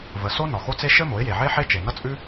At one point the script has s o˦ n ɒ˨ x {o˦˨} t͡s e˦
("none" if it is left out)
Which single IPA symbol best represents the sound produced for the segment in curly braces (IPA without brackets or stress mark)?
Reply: o˦